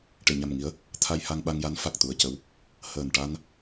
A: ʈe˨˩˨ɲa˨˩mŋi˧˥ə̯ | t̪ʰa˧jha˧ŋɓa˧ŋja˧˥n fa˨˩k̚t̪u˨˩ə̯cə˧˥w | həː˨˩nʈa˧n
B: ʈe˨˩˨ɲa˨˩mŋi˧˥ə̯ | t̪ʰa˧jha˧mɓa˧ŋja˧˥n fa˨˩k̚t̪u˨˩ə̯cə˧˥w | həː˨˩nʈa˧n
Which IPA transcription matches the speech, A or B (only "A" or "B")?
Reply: A